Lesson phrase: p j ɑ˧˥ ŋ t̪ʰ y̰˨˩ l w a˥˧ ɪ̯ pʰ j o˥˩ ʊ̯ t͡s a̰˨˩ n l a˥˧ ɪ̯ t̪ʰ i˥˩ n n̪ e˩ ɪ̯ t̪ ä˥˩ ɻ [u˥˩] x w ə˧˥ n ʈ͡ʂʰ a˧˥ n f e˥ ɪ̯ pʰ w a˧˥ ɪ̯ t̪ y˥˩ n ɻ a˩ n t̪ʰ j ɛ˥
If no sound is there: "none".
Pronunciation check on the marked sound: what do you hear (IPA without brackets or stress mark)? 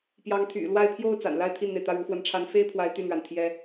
u˧˥